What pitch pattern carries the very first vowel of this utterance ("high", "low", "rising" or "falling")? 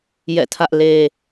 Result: falling